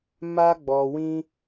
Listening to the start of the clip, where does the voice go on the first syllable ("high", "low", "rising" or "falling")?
high